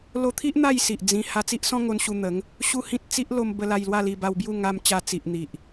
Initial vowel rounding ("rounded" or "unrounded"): rounded